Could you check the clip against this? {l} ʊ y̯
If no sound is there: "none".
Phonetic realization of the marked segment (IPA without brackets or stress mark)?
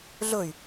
ɮ